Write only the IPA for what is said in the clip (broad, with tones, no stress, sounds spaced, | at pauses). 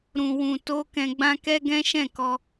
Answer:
ɾ ũ˨ w ũ˨ t o˧ k ɛ̃˧ ɡ͡b ã˦ k ɛ˦ ɡ ɛ̃˦ ʃ ɛ̃˦˨ k ɔ˧